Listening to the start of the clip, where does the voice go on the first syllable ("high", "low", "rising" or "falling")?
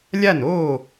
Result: falling